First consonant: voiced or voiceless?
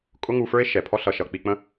voiceless